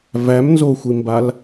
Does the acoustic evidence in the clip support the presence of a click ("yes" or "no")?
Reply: no